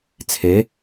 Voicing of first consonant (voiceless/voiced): voiceless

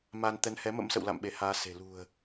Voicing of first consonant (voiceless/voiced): voiced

